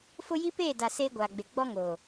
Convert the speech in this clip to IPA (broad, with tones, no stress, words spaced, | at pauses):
fʊ˦ ji˦peː˦˨da˨ seː˦ɡʷaː˨ɡ͡be˨ ɡ͡bɔ˦ŋoː˨